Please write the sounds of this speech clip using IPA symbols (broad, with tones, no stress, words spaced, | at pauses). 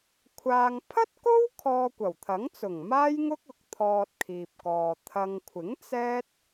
kʷʰaː˨ŋpʰɐ˥t̚ko˥w kʰɔː˧kʷɐ˨˩wt̪ʰɐ˨˥ŋt͡sʊ˨˩ŋ maː˥jŋʊ˥k̚ʊ˨k̚ t̪ʰɔː˧t̚kʰiː˨p̚kɔː˨ t̪ʰɐ˨ŋkʷʰɪ˨˥ŋ t͡sɛː˥t̚